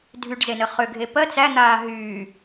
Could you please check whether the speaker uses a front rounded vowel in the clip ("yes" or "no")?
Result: yes